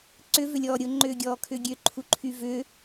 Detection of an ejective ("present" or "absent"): absent